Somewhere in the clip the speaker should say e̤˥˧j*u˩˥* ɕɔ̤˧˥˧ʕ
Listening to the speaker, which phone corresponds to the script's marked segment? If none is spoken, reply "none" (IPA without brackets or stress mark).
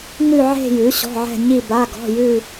ʉ˩˥